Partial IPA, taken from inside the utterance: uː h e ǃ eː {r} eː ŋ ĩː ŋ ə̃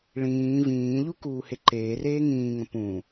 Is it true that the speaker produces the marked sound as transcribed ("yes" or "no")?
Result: yes